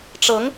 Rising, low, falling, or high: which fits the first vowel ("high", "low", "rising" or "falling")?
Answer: rising